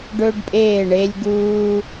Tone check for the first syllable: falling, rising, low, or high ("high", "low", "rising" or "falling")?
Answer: high